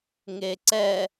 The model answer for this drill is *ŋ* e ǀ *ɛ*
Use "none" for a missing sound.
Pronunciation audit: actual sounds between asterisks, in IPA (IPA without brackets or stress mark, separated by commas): ŋ, ɛ